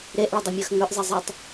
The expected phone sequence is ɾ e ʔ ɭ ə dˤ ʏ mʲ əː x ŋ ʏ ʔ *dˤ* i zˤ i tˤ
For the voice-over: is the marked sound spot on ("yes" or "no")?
no